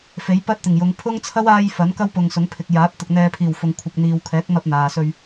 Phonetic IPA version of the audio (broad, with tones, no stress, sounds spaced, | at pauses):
f e˨˥ j p ɐ˥ t̚ t̪ ɪ˨˩ ŋ j ʊ˨˧ ŋ pʰ ʊ˥ ŋ t͡sʰ ɐ˥ w aː˧ j f ɐ˨˥ n k ɐ˥ w p ʊ˨ ŋ s ʊ˨˥ ŋ pʰ ɪ˨ k̚ j aː˨˥ p̚ t̪ ʊ˨ k̚ n̪ ɛː˨ pʰ iː˨˩ w f ʊ˨ ŋ kʷʰ ɪ˨ k̚ n̪ iː˨ w kʰ ɛː˨˥ k̚ m ɐ˧ p̚ n̪ aː˨ s ɵ˧ ɥ